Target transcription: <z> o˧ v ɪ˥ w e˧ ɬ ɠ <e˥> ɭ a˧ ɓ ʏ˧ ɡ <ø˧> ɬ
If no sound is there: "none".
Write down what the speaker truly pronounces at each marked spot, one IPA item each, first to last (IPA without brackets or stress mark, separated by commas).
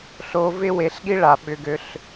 ɬ, i˥, ø˧